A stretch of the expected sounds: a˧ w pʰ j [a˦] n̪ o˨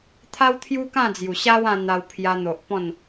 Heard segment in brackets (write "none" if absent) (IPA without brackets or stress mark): a˧